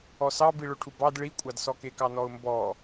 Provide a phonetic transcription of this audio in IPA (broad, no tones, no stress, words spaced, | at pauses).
ɔsɑ biɭɵʈʰubɑd ɭikʷʼɑdsɔ kekɑnɔʊ̯mbɔ